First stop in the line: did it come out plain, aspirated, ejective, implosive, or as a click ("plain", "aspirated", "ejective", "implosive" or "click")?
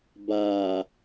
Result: plain